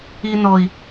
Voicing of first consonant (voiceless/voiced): voiced